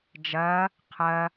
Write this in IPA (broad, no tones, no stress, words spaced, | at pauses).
d͡ʒɐ | qʰɐ